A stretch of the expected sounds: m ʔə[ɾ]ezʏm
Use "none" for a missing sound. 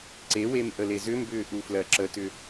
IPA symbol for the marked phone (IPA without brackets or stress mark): l